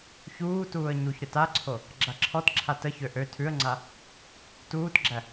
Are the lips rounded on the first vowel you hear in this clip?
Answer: yes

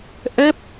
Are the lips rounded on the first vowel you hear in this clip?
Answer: no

